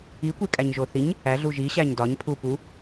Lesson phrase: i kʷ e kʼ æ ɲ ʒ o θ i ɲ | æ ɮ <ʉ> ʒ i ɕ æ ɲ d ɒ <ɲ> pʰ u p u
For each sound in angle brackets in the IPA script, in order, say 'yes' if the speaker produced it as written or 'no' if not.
no, yes

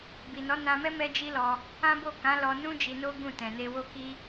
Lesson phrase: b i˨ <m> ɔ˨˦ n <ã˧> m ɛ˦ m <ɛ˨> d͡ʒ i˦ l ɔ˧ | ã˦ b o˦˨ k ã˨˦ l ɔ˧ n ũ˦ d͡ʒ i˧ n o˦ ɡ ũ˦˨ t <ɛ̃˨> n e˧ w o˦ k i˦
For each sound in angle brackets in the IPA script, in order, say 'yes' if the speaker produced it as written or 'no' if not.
no, yes, no, yes

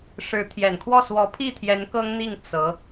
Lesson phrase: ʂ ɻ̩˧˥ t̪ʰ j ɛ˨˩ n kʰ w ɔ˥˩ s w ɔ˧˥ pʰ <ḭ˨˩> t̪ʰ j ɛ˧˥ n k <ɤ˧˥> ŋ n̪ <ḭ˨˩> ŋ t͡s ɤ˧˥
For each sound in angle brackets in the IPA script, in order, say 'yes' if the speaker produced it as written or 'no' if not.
no, no, no

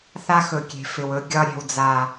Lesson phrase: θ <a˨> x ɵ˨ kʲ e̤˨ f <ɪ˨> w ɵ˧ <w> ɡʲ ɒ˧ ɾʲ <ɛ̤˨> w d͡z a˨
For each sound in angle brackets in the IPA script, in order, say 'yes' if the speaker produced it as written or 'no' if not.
no, yes, no, yes

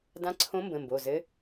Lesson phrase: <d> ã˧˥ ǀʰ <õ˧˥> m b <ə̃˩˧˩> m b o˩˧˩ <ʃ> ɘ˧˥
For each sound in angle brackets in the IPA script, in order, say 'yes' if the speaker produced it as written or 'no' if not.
yes, yes, yes, no

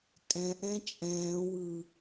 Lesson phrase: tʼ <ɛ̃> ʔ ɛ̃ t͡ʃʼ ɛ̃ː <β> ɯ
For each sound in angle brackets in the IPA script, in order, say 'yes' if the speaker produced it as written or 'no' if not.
yes, no

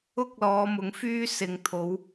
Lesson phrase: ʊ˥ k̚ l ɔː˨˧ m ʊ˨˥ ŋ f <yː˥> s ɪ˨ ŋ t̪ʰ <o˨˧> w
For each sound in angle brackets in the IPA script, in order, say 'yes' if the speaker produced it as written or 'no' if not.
yes, yes

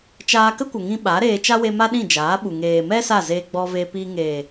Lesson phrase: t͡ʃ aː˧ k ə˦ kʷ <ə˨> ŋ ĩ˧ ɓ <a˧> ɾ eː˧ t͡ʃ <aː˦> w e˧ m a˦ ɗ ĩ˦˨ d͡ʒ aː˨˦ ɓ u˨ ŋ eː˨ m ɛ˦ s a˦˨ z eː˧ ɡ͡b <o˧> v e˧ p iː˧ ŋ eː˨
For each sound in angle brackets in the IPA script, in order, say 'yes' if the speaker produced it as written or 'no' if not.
yes, no, no, no

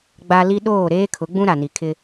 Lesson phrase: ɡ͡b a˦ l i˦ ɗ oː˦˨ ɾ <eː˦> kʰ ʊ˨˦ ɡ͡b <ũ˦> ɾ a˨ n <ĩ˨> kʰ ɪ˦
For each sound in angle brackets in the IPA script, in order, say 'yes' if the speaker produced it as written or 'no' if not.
yes, yes, no

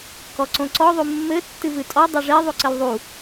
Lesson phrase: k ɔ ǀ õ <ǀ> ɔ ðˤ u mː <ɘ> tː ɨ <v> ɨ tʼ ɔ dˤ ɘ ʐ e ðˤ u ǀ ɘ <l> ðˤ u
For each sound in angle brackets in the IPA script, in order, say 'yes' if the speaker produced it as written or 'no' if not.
yes, yes, yes, yes

